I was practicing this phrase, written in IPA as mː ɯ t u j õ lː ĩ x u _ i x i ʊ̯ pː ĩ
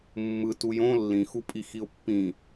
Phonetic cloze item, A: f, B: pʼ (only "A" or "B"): B